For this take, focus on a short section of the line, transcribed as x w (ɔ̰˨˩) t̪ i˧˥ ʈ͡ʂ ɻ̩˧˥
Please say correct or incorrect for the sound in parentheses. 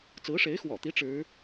correct